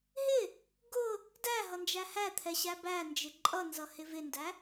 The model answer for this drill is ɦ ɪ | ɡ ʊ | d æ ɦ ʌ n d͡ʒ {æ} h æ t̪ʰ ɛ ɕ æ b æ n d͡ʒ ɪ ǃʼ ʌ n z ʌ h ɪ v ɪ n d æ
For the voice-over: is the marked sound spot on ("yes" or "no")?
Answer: yes